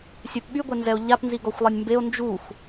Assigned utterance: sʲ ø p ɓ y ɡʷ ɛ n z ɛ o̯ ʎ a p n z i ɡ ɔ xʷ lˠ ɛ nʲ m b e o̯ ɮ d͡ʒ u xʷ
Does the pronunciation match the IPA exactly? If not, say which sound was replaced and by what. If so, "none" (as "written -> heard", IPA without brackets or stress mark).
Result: ɮ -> n